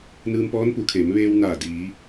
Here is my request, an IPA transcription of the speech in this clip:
n ɯː˧ m p ɔː˧˥ n p u˩˧ kʰ eː˩˧ m ʋ eː˧ w n aː˧˩ d iː˩˧

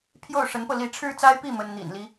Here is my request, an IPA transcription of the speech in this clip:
pʰ j o˥˩ ʊ̯ ʂ ə˧˥ n p ɤ˧ l i˧˥ ʈ͡ʂʰ ɻ̩˥ t͡s a˥ ɪ̯ p i˥˩ m ə˥ n n̪ ḭ˨˩ n l i˦

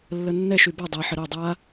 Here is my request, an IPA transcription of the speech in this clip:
lː ə nː ɛ ʃ y b a dˤ ɛ ħ ə ɾ o dˤ a

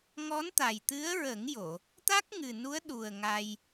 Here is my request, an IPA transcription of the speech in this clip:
ŋ ɔ˧˥ n t̪ a˨˩ j t̪ ɨ˧˥ ə̯ ɹ ə˨˩˦ ŋ j o˨˩˨ | t̪ a˦˥ k̚ ŋ ɨ˨˩ n u˧˥ ə̯ ɗ u˨˩ ə̯ ŋ a˧ j

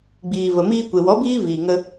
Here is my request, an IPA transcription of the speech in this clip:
ɡ͡b iː˨ v ə˨ m iː˧ kʷ e˨ w ɔ˨˦ b iː˦ v iː˨ ŋ ə˦

